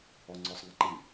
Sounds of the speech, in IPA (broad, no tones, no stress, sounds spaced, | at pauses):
ɔ ŋ͡ǀ ɔ sˤ ŋ a ǃ i